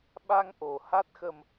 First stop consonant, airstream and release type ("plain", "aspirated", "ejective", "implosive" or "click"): implosive